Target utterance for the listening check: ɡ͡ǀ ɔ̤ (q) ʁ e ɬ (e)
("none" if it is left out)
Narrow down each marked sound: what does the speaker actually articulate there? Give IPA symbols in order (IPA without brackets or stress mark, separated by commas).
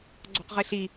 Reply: q, i